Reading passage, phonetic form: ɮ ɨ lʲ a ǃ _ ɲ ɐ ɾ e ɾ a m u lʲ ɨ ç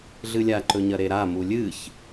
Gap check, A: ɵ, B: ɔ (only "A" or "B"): A